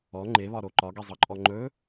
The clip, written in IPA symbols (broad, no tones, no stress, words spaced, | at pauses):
ɔ ŋ͡ǃeβɒɾo ǃɒɡizˤɤǃʼɔ ŋ͡ǃɵ